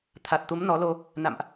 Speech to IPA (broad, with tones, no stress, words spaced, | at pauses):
t̪ʰa˨˩t̚t̪u˨˦m nɔ˨˦lo˧ | na̰˧˨mʔ